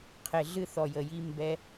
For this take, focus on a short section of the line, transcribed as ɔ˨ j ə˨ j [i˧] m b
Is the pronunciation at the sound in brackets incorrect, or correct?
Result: correct